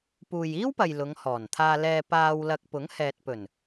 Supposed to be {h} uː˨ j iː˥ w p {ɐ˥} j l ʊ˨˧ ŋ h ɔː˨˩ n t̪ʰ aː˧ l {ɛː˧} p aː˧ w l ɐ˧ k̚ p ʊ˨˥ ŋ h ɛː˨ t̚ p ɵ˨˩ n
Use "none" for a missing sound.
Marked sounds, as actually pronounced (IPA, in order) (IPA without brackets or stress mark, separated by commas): p, ɐ˨, ɛː˧